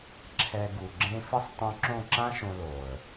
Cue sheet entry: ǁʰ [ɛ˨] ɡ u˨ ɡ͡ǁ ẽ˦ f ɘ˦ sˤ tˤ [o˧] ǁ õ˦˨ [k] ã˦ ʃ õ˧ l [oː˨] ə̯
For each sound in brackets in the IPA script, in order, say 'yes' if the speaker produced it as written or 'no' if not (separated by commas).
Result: yes, no, no, yes